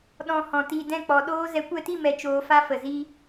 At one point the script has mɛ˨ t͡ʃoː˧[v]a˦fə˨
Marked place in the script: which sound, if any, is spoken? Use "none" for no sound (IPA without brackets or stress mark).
f